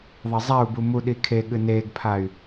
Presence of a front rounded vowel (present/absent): present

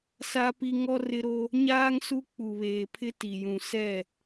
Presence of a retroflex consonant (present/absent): absent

